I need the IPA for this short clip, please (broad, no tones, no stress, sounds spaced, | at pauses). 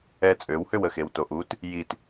ɛ t͡sʼ ø w h ø w ə x e w t o ʔ u t | j i t